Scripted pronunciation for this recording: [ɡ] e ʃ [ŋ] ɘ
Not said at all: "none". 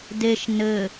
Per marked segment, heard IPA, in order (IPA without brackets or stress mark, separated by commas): d, n